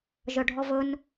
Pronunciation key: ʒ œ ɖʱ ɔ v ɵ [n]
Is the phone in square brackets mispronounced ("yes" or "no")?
no